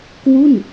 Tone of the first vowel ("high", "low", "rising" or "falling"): falling